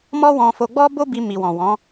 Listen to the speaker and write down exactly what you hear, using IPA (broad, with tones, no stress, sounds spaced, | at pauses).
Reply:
m ɔ˦ w ɔ̃˧ f o˧ ɡ͡b ɔ˦ b o˦ b i˧ m i˨ w ɔ̃˨ w ɔ̃˨˦